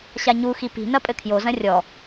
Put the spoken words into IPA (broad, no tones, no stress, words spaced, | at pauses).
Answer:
ɕaɲuxi pi̤nɐ pʼɘkʰjozɐ̃ rʲɔ